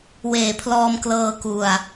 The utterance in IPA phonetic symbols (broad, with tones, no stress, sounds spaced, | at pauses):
w eː˨˩ pʰ l ɔː˧ m k l ɤː˧ k u˧ a̯